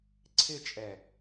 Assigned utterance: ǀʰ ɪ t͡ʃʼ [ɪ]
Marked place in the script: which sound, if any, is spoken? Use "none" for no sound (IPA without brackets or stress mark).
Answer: ɛ